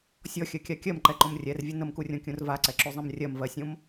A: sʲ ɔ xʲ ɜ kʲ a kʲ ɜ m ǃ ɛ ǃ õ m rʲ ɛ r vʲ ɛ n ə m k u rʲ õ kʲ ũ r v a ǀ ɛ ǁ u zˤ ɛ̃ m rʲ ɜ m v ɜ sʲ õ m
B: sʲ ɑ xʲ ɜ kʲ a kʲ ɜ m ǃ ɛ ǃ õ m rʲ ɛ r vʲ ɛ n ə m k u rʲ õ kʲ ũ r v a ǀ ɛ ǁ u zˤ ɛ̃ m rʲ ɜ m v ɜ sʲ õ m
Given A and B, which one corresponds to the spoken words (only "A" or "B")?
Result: A